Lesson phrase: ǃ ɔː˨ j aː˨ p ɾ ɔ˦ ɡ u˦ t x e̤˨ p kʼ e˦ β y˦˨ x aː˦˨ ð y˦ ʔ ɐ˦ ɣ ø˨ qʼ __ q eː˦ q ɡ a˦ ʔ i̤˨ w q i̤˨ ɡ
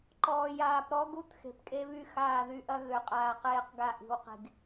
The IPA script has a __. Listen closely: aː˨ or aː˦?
aː˨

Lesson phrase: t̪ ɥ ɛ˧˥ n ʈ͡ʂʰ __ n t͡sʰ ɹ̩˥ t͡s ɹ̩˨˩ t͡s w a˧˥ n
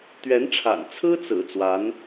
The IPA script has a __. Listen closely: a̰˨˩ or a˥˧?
a̰˨˩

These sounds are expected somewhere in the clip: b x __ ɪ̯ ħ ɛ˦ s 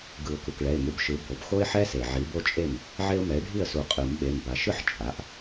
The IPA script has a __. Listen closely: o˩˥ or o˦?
o˦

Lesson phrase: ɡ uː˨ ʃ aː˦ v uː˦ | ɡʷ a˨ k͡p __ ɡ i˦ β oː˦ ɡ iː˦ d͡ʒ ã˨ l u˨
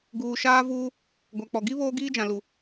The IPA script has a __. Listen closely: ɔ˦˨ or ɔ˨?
ɔ˨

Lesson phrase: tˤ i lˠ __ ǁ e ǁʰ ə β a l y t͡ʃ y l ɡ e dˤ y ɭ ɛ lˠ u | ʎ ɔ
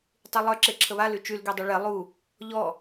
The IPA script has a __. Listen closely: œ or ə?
œ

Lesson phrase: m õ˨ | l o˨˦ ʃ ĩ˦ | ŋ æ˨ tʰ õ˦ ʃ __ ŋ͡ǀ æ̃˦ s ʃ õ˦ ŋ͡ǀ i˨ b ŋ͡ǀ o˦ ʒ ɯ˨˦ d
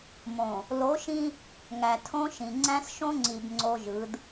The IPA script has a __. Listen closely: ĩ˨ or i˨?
ĩ˨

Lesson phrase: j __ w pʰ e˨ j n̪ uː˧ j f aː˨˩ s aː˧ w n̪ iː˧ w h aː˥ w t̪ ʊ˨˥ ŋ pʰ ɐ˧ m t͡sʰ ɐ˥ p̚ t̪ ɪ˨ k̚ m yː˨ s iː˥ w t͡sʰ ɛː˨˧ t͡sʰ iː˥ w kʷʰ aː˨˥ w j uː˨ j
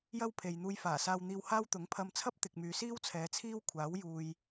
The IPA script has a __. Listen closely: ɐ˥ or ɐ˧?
ɐ˥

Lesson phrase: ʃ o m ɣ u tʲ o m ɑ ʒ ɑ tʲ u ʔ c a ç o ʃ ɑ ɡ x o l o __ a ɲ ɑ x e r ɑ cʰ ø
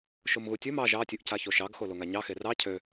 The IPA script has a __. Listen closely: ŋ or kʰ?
ŋ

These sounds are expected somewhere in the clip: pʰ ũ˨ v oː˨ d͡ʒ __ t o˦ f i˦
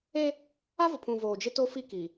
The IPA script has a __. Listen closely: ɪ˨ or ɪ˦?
ɪ˦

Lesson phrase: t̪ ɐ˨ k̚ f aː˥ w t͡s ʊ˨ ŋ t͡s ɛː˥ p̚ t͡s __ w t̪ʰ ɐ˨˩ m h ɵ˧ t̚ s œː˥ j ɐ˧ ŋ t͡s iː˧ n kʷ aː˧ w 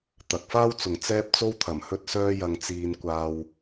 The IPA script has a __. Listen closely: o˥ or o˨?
o˥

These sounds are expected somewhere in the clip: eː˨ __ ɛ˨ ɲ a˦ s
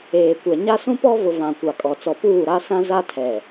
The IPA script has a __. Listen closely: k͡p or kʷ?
kʷ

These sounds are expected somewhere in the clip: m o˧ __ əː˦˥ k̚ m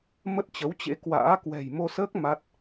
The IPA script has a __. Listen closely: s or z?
s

